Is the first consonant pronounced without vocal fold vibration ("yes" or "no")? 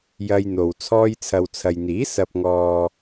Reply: no